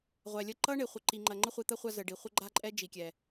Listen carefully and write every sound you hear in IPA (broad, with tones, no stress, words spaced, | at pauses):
ʁʷɛ˨lʲə˦˨ ǃʌ˦ɳe˨ χʷə˨ǃi˨ŋ͡ǃɐ˨ ŋ͡ǃə˦χʷi˨t̪ɐ˦ χʷa˦zə˨ɖi˨ χʷə˦ɡ͡ǃa˦ǃʼɛ˦ d͡ʒi˨kʲɛ˨